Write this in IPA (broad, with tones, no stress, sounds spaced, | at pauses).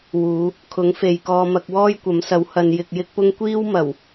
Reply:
w uː˨˧ | kʰ ʊ˨˥ ŋ f e˨ j k ɔː˧ m ɐ˧ k̚ w ɔː˥ j kʷ ɐ˨˥ m s ɐ˨˥ w h ɐ˨ n j ɪ˨ k̚ j ɪ˥ k̚ p ʊ˥ ŋ kʷ iː˥ w m ɐ˨˩ w